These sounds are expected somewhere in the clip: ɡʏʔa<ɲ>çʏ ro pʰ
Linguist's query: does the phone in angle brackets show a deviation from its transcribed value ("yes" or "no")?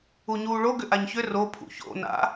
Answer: no